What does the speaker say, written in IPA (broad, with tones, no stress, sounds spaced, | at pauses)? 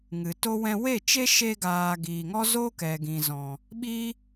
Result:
ŋ ɨ˨ t o˦ w ɛ̃˧ w e˦˨ t͡ʃ e˦ ʃ e˧ ɡ aː˨ ɡ iː˨ ŋ ɔ˦ z o˦ k ɛ˨ ɡ ĩ˨ z ɔ̃˨ | ɓ i˦